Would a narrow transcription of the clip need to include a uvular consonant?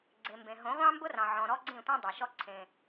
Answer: yes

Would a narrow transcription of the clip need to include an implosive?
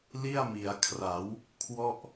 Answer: no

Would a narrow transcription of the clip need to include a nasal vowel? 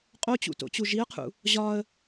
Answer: no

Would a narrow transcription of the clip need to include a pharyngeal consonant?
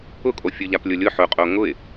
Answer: yes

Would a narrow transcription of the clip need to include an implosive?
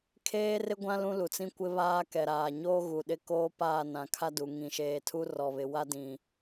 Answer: yes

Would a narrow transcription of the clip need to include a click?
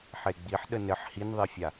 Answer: no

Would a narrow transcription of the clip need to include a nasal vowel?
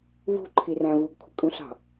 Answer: yes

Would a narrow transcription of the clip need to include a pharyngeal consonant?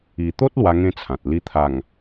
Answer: no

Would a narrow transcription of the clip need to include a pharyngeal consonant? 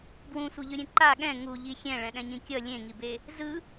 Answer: no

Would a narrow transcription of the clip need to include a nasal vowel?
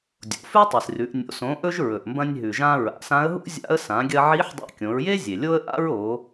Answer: yes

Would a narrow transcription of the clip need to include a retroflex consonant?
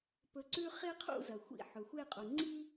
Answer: no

